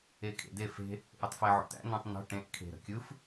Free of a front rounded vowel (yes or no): no